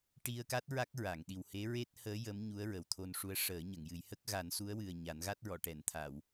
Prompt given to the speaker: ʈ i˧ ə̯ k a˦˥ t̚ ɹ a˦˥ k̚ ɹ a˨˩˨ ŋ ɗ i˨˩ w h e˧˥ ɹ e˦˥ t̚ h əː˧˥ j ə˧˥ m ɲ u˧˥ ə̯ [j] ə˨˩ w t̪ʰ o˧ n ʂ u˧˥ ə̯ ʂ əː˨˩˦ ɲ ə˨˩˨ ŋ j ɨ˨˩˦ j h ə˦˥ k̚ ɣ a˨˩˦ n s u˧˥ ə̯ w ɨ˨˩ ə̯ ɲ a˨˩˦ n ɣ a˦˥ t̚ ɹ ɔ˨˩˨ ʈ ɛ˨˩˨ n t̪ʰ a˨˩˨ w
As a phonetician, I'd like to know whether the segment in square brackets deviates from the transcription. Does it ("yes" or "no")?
yes